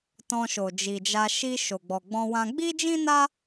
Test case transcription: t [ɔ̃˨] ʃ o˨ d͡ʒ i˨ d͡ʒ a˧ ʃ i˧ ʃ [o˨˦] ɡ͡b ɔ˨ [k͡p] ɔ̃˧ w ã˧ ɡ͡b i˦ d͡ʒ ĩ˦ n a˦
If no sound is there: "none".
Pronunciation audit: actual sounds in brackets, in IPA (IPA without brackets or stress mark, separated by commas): ɔ̃˧, o˨, ɡ͡b